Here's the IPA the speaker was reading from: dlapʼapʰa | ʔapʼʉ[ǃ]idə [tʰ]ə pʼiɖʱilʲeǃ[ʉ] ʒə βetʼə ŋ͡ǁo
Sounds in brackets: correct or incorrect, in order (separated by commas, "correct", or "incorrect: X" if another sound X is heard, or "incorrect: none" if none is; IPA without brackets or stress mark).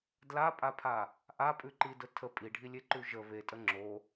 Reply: correct, correct, correct